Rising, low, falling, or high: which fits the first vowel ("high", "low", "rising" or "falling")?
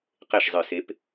falling